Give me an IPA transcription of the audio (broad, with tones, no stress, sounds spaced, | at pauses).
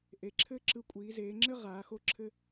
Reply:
ʔ e˩˧ ǁʰ ɘː˥ ǁ ɯ˧ kʷʼ iː˩˧ z eː˩˧ ŋ͡ǁ ɘ˥ ʁ aː˩˧ x o˥˨ ǁʰ ɘ˥